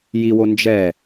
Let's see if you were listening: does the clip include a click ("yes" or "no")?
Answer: no